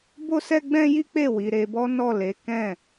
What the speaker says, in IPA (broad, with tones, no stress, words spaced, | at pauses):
bo˦sɛ˦ɡ͡bɛ̃˦ ji˦k͡pe˦˨ wi˨˦ɾe˧bɔ˦ nɔ˦˨le˨˦kɛ̃˦˨